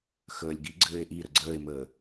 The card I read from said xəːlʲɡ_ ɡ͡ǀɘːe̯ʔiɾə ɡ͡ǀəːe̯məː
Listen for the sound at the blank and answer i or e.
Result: i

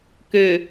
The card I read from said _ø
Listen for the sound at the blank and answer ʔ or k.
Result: k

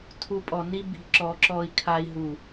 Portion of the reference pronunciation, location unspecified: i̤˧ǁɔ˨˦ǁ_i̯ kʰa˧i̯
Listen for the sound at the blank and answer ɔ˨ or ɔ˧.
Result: ɔ˧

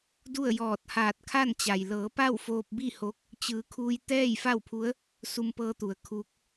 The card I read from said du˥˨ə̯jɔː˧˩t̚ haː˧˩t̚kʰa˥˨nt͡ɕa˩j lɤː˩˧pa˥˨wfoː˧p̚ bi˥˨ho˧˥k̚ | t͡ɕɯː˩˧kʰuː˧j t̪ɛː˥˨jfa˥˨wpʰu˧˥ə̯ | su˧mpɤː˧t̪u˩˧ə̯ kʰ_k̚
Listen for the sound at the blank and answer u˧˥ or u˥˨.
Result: u˧˥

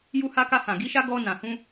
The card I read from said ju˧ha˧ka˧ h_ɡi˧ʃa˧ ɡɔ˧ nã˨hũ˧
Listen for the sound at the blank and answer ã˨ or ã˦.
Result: ã˨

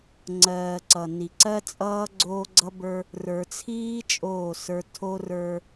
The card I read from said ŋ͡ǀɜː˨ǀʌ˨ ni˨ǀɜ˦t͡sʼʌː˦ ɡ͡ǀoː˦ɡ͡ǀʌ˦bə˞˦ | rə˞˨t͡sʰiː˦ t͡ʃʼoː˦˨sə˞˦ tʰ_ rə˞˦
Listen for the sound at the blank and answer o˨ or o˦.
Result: o˦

